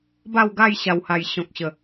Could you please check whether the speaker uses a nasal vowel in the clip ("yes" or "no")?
yes